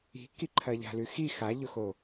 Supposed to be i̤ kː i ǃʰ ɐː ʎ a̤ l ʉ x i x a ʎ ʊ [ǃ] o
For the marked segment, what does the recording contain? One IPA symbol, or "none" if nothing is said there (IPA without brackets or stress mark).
x